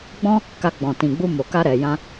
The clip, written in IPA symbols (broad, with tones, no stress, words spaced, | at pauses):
ɡ͡bɔ̃˦ | ka˧ ɡ͡bɔ̃˨tĩ˨ɡ͡bu˧ mo˨ka˧ ɾɛ˨jã˧